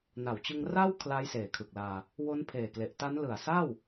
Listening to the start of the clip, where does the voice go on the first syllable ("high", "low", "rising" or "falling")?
low